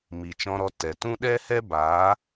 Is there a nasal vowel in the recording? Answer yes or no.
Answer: yes